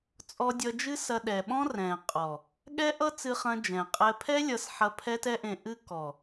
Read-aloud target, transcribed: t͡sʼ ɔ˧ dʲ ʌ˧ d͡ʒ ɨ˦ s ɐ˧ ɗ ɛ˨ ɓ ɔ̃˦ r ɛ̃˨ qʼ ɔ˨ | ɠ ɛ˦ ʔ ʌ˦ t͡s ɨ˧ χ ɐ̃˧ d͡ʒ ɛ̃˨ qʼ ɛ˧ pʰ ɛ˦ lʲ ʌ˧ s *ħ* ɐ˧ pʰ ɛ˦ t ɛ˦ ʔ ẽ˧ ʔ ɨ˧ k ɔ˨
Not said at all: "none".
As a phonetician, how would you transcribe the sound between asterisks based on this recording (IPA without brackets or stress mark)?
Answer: ħ